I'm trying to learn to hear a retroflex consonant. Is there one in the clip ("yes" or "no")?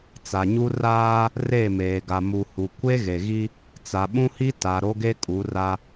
no